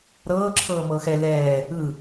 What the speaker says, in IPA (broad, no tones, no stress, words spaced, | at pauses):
ɾɤːǁʰɤː mɤːxɛ lɛː | ɯ